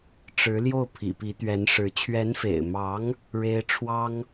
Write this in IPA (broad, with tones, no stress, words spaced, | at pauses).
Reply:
ʈ͡ʂɻ̩˧˥ ljo˥˩ʊ̯pʰḭ˨˩pi˧˥ t̪ɥɛ˧˥nʂɻ̩˧˥ t͡ɕʰɥɛ˧˥nfḛ˨˩ɪ̯mɑ˧˥ŋ | ɻe˥ɪ̯ ʈ͡ʂʰwɑ˥ŋ